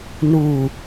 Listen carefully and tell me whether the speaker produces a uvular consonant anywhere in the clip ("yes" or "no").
no